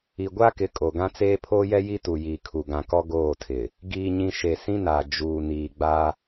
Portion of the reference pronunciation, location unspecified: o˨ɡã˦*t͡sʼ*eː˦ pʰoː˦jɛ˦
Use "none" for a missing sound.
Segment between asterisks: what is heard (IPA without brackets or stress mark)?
t͡s